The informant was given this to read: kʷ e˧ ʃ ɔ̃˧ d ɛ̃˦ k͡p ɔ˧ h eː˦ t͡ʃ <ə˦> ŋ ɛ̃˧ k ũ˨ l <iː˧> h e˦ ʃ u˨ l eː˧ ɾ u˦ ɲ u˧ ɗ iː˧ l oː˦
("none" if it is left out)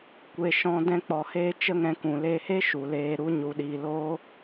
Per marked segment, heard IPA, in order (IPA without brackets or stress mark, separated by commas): ə˦, eː˧